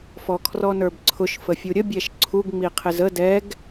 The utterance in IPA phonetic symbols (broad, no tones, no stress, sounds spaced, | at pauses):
f ɔ kʰ r ɔ n ə˞ b ǀʰ ʊ ʃ f ə fʲ u ɾʲ ə bʲ ɛ ʃ ǀʰ u ɡ ŋ͡m i qʰ ɪ z ə d ɛ ɡ